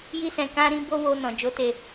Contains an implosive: no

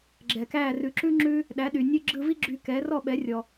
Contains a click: yes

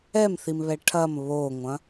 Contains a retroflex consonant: yes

